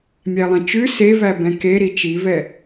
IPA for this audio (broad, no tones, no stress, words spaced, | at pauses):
mʲælˠẽt͡ʃʉ sevæ bɛ̃ke ɾit͡ʃivɛ